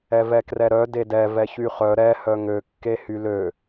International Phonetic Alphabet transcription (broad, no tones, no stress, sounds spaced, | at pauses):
ɛ v ɛ k r ɛ ɾ œ d e d ɛ v ɛ ç y χ œ ɾ ɛ h œ ŋ ø kː e h y l ø